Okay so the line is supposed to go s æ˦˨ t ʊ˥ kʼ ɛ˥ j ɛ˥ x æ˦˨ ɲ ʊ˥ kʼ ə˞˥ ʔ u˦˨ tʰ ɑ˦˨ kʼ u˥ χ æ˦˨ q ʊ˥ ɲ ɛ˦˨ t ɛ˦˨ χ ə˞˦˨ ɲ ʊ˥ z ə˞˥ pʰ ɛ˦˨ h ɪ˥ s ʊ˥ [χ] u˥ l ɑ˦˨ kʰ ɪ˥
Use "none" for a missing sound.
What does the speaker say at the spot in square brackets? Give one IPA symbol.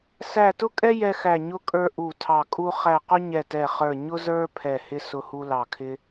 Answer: h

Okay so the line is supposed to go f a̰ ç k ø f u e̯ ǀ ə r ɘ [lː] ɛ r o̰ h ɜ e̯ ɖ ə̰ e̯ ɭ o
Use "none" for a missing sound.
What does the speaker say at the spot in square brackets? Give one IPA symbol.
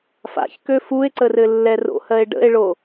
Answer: lː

